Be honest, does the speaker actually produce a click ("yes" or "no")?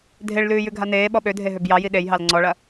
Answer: yes